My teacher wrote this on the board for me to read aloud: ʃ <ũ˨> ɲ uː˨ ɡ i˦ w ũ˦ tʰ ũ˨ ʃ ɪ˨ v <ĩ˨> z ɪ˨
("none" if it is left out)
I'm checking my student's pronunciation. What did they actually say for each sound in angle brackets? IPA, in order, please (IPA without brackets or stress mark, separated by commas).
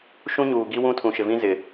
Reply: ũ˦, ĩ˦